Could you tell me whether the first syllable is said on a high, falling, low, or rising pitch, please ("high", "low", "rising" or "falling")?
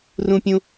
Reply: high